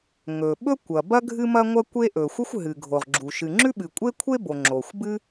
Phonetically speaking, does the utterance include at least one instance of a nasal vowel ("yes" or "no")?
no